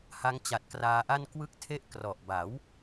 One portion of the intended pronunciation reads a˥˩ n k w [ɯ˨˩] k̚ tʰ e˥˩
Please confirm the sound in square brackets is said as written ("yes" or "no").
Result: no